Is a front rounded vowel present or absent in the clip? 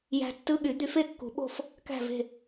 present